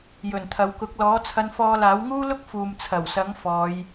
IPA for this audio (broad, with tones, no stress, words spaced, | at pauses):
jɵ˨˩nt̪ʰɐ˨˧wkʊ˨˥k̚ lɔː˨˥t͡sʰɐ˧nfɔː˧laː˨˥w ŋuː˥lʊ˥k̚ fuː˨mt͡sʰɐ˨˩wsɐ˨˥ŋ fɔː˨˧j